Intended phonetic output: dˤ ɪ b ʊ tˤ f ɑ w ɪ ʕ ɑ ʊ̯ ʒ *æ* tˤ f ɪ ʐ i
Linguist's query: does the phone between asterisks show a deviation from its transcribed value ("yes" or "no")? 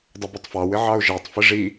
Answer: no